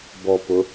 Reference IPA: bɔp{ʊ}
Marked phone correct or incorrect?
correct